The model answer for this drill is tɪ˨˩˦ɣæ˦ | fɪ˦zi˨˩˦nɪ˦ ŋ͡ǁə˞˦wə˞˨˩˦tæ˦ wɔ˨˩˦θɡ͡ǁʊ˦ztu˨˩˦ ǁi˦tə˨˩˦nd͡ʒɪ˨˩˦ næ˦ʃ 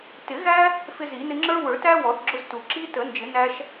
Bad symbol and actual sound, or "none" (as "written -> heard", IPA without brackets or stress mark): none